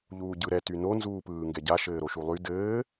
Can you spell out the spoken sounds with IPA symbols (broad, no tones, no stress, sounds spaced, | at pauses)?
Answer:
ʎ uː ɟ ɯ ɾ ɛ t y n o n z uː p ɯː ŋ ɡ ɛ ɟ a ʃ ɘː ɾ o ʃ u lˠ y d ɘː